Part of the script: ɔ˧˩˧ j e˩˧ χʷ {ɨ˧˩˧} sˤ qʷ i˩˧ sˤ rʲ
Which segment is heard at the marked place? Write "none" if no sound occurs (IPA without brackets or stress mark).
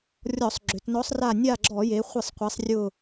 ɨ˧˩˧